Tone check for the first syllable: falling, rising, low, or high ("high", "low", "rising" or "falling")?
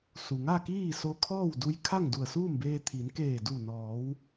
low